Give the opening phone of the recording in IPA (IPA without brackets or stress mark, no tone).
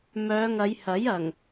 m